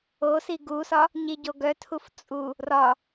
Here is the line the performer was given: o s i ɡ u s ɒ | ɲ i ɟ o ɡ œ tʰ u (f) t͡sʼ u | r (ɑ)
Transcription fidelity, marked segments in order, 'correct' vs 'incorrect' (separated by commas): correct, incorrect